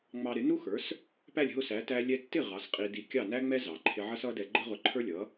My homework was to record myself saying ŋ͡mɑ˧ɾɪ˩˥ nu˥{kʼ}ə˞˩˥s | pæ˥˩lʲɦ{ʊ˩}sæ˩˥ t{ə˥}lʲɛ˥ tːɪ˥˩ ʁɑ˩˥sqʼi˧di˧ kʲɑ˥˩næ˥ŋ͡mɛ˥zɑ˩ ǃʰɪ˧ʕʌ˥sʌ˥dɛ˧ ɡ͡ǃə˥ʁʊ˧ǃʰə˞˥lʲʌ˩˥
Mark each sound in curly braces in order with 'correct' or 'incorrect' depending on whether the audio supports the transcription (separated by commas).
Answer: incorrect, incorrect, incorrect